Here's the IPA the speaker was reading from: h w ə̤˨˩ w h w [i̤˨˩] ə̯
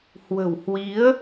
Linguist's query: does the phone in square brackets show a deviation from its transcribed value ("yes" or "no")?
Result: yes